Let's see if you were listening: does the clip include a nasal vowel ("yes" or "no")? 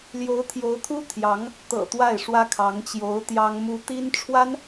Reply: no